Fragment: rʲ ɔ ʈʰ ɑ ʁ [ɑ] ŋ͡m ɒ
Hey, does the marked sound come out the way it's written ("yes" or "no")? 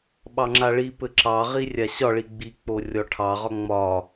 no